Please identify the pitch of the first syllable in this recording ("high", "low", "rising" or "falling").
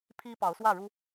high